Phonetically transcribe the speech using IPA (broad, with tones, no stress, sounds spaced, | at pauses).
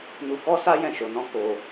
n u˧ k ɔ˦ s a˦ j ɛ̃˦˨ ʃ o˧ n ɔ̃˦ k o˧